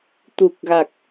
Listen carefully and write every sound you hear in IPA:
t̪u˨˩k̚ɣa˨˩k̚

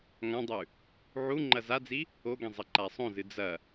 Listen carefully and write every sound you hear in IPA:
ŋãdˤʉ | ʕu ŋ͡ǃɐzad͡zi | oɡẽ zˤɐǃasˤõzɨ d͡zɐ

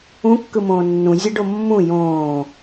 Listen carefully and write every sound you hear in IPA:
ũkːɯmõː nːũzʲɛɖo mːũ jõː

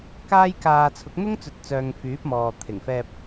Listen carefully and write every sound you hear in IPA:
kaː˥jkaː˧ t͡sʰʊ˨˥k̚n̪ʊ˥ŋt͡sɵ˨˥t̚t͡sœː˨ŋ fyː˨˥p̚mɔː˨ t̪ʰɪ˨˩ŋfɛː˧p̚

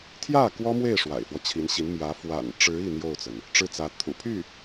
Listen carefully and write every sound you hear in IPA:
t̪ʰjä˥˩ kwɔ˥mwe˥˩ɪ̯ ʂwa̰˨˩ɪ̯fwɔ˦t͡ɕʰi˧˥nɕi˧˥n mjä˧˥ fwa̰˨˩nʈ͡ʂɻ̩˧˥ i˥˧n̪jo˥˩ʊ̯t͡sə˩n | ʈ͡ʂɻ̩˥˩t͡sä˧˥ t̪ʰṵ˨˩pʰy˥˩

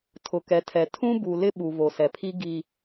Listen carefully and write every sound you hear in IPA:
tʰʊ˨kɛ˨tʰɛ˨ tʰũ˦bu˨ lɪ˦ɓu˨ vo˨sɛ˨pʰi˦ ɡi˦

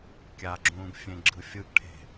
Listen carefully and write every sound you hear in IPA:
kʲaɡ͡ǁũːɡ fʲẽɡ͡ǁɯfʲɯɡʈʰe̤

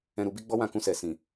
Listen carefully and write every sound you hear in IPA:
ɛ̃˧ɾu˧bi˦ ɡ͡bɔ˦wã˦˨kũ˧sɛ˨ sĩ˨

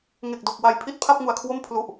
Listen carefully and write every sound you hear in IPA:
ŋe˨˩k̚do˨˩k̚ wa˨˩j pʰi˥˩t̚ pʰa˥˩p̚ŋu˨˩a̯kʰwo˥˩m pʰlu˨˩ʔ

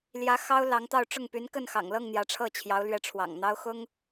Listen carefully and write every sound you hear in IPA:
ljä˧˥ xɑ˥ʊ̯lɑ˧˥ŋt̪ɑ˥˧ʊ̯ ʈ͡ʂʊ˥˩ŋpy˧˥nkə˥˩nxɑ̰˨˩ŋ lɤ˥˩ŋ n̪jä˧˥ʈ͡ʂʰɤ˥˩t͡ɕʰjɑ˧˥ʊ̯lɥɛ˧˥ ʈ͡ʂʰwɑ̰˨˩ŋn̪ɑ˥ʊ̯ xʊ˥ŋ

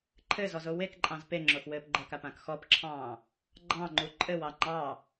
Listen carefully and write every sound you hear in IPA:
ǃʰɘzɔzo wekǃʼɑ̃z peŋ͡ǁoxwɘːp ɡ͡ǃɘkapãk xɔpǁʰɑ̃ː | ɡ͡ǃɑ̃ŋ͡ǃu ǃʼɘwɑ ŋ͡ǃɑ

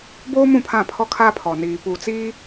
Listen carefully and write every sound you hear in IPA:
boː˦m ũ˨pʰã˦˨pʰɔ˦ kʰa˦pʰɔ˨ niː˨pu˨t͡siː˦

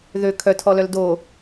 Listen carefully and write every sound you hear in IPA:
ðø kʰœtʰɔlœl do

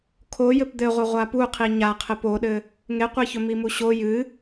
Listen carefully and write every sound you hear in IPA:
kʰo jɘpd̪ɘʁʷɘ ʁʷapuqʰi ɲaqʰɘp oɗɘ | ŋeqʷeçɵ mimuɕo jɨ

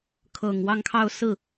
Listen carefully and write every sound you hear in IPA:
kʰɤ˨˩ŋ wɑ˥˧ŋkʰɑ˥˧ʊ̯ sɹ̩˥˩

